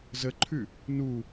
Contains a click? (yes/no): yes